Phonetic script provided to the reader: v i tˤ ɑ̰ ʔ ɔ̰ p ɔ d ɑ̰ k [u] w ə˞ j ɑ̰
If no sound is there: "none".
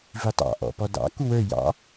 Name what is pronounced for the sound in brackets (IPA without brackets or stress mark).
u